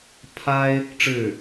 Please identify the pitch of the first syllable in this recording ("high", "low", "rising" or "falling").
high